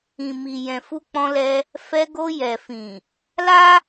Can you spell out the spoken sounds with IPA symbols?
ĩ˨ m i˨ j ɛ̃˨ f u˧ k͡p ɔ̃˧ l ɛ˧ | f ɛ˧ ɡ o˧ j ɛ˨ f ĩ˨ | l a˦

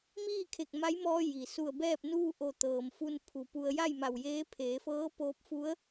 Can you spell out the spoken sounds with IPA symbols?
m iː˥˨ kʰ e˧˩ k̚ m a˧˥ j m ɔː˧ j i˩ s u˧˩ ə̯ b ɛː˥˨ p̚ n uː˥˨ ʔ o˧˩ t̪ ɤː˩ m f u˧ n pʰ u˩ p u˧ ə̯ j a˥˨ j m a˧˩ w j eː˧˥ pʰ eː˩˧ f ɤː˧˥ p oː˧ p̚ f u˧˥ ə̯

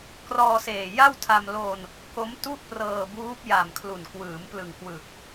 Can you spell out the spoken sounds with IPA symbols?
k r ɔː˧ s eː˨˩ j a˥˩ w tʰ a˧ m l o˧ n | k o˦˥ m t u˥˩ ʔ p r ɤː˧ b uː˦˥ p̚ j a˨˩ m kʰ l u˨˩ n k w ɯː˩˦ m p l ɯ˨˩ ŋ k w ɯ˨˩ k̚

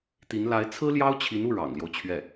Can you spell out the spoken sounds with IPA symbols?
t̪ i˧˥ n l a˧˥ ɪ̯ t͡sʰ ɹ̩˥ l j ɑ˥ ʊ̯ t͡ɕʰ i˧˥ n u˥˩ ɻ ɑ̰˨˩ ŋ l j o˦ ʊ̯ t͡ɕʰ ɥ ɛ˥˩

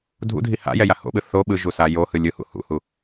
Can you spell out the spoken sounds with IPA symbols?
dʱ ṵ dʱ i h a̰ j ɛ j a h o̰ ɓ ɯ θ o ɓ ɯ ʒ u s a j o h ɯ lʲ ɯ h ṵ h ṵ h u

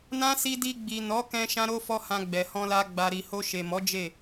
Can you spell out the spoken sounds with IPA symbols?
n ã˦ s i˧ d i˧ ɡ͡b i˨ n ɔ˨˦ k ɛ̃˧ ʃ ã˦ ɾ o˦ f ɔ˦ h ã˧ ɡ͡b ɛ˨ h ɔ̃˧ l a˧ ɡ͡b a˨ ɾ i˨ h o˧ ʃ e˨ m ɔ˨˦ d͡ʒ e˦˨

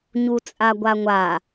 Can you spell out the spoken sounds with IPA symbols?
ɲ u t͡sʼ a ɡʷ a ŋʷ a

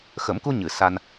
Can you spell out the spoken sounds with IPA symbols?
x ə˨˩˦ m k u˧ ɲ ɨ˨˩˨ s a˧ n

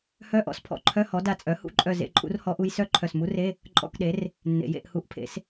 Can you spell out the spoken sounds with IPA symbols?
h œ˧˥˧ ʔ ɔ̰˩˥ s pʰ ɔ̰˩ ǃʰ œ˧˥˧ h ɔ˩˥ d a˧˩ t͡sʼ œ˩˥ h ṵ˧˥ ǃʼ œ˧˩ z ḛ˧˥˧ ǃʼ ṵ˧˥ r h ɔ˧˥ ʔ u˧˥ j s œ˧˥˧ ǃʰ œ˧˩ s m u˧˥ r e˧˥˧ | ǃʼ ɔ̰˧˥˧ k ɗ e˩˥ r | nː ḛ˩ j ḛ˧˩ ʔ h u˩˥ ʔ pʰ ḛ˩˥ s

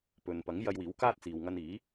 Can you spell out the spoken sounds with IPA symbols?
p ɵ˨ n p ɐ˨˥ ŋ j ɐ˧ j w iː˨˥ w k aː˥ t̚ t͡s iː˨ w ŋ ɐ˧ n iː˨˥

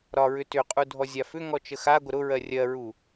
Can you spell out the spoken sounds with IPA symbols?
ɾ ɒ ɹ ʏ t ʏ qʼ u dʱ ɔ zʲ a f ʏ ŋ ɔ t͡ʃ ə x a ɡʷ ə ɾ ʊ ɹ ɜ rʲ ɜ ɹ u

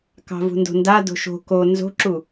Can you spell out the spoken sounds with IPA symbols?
k ɑ̤ v ṳ n d o̤ n d a d o̤ ʃ o̤ k o n z o̤ ǁ u

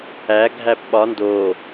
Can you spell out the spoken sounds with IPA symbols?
æ ɡʱ æ p ɓ ɒ n d o

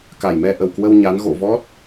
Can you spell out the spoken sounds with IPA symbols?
k a˨˩ j m ɛ˧ ʔ ə˨˩ w k w ə˧ w ɲ a˨˦ n ɣ o̰˧˨ v ɔ˦˥ t̚

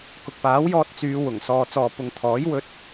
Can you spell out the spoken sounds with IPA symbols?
k ʊ˨ k̚ p aː˨˥ w j ɔː˧ t̚ t͡s yː˨˧ w ʊ˨˩ ŋ s ɔː˨ t͡s ɔː˨ p ʊ˨ ŋ t̪ʰ ɔː˨˥ j w ɵ˧ t̚

